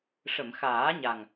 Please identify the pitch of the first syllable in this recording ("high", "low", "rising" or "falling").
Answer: low